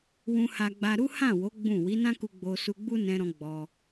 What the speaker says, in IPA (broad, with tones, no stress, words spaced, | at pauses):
wũ˧ha˧ɡ͡ba˧ ɾu˦ hã˦˨wo˨˦ ɡ͡bũ˦˨ wi˨˦nã˦ku˧ ɡ͡bo˧ su˧ɡ͡bu˦nɛ̃˧ɾɔ̃˧ ɡ͡bɔ˧